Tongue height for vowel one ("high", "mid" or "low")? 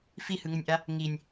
high